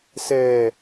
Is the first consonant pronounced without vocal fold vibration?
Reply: yes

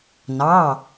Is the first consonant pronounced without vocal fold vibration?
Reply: no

